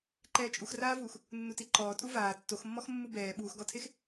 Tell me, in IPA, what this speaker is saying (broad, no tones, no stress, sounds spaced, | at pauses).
ǃ ɛː t͡ʃʼ u x r aː v uː x | nː u t i ǃ ɔː tʼ u v aː tː o x mː ɔ x mː u b ɛː ɓ uː x ɡ ɔ tʰ e x